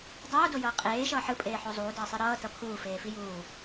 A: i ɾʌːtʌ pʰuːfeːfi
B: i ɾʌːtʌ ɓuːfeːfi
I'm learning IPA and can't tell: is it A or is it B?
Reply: A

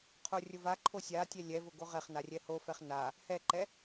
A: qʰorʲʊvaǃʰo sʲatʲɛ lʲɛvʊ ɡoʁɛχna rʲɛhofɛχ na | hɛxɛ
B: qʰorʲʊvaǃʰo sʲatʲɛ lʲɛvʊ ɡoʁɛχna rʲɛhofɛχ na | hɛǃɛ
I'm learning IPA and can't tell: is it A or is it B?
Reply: B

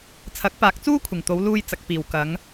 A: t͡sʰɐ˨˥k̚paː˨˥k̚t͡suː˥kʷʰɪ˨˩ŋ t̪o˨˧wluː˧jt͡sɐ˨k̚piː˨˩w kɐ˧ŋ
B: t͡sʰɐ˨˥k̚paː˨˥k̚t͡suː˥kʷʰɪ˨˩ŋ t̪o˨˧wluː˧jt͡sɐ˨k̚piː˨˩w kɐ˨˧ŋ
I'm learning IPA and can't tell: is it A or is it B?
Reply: B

